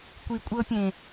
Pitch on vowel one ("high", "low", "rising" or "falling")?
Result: low